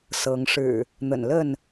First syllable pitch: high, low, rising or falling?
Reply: rising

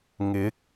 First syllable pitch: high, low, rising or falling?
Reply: rising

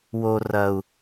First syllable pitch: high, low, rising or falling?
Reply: low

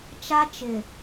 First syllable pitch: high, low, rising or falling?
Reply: high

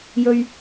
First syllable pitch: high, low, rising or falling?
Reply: low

